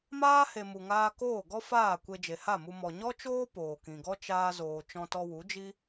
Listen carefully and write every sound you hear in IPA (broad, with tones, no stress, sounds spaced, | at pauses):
m aː˦ h e˧ m u˨ ŋ aː˧ k oː˦˨ ɡ ɔ˦ f aː˦˨ kʷ e˧ d͡ʒ e˨ h a˦˨ m u˧ m ɔ˨ ɲ ɔ˦ t͡ʃ oː˦ p oː˨ k ĩ˨ ɡ ɔ˦ t͡ʃ aː˦ z oː˧ t͡ʃ ɔ̃˧ t ɔ˧ w u˨˦ d͡ʒ i˦